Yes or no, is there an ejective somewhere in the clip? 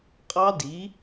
yes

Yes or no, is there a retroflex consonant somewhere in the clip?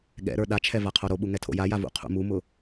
no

